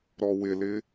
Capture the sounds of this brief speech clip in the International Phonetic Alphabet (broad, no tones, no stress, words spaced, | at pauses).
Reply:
ɾɔwɪlɪ